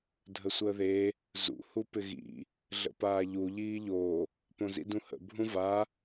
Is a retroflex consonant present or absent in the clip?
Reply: absent